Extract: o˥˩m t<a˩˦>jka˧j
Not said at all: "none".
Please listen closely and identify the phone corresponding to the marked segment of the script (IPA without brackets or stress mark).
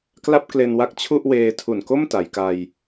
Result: a˩˦